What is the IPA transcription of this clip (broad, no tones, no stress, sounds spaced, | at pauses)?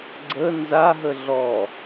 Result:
ɡ͡ǀ ə n z a ɦ ə ɮ ɔ